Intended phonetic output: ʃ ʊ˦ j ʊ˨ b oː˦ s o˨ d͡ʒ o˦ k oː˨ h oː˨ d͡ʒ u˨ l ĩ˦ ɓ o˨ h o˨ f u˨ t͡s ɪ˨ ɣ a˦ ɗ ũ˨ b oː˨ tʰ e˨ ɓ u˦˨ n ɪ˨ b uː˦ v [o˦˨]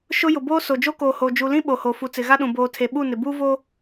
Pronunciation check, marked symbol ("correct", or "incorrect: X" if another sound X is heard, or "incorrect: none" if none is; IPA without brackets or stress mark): incorrect: o˦